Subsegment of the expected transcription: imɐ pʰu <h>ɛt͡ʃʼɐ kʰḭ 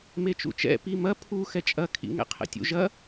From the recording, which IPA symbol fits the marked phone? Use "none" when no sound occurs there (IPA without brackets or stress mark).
x